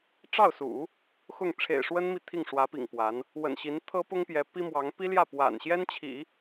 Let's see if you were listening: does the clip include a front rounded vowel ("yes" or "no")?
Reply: no